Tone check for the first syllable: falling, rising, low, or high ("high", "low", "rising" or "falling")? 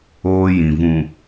high